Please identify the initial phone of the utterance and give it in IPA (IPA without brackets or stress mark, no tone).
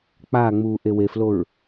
k͡p